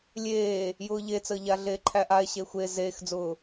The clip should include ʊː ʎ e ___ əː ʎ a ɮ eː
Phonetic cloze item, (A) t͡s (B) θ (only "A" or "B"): A